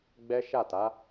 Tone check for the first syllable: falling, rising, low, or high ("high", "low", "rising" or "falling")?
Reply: high